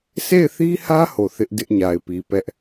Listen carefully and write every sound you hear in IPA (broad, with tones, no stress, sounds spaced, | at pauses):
s e˦˨ ɪ̯ θ i˦ h ä˦ h o˨ θ ɪ˦ ʔ d ɪ˦ ʔ ɲ a˨ ɪ̯ p i˨ p ɛ˦ ʔ